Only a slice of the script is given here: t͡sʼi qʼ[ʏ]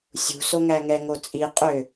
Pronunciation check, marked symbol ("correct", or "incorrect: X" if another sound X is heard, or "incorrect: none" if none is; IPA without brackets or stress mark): correct